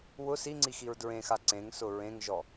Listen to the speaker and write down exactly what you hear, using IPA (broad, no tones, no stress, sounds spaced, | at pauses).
w ʊ s i ŋ͡ǀ i x i ɹ d ɹ ẽ x a ǀ ẽ ŋ s ʊ ɹ ẽ ŋ ʒ ɔ